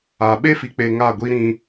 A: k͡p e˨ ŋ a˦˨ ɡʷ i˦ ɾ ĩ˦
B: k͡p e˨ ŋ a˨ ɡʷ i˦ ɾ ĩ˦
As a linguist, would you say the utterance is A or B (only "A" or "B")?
A